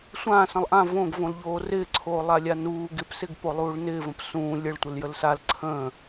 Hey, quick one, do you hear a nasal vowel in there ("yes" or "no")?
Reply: yes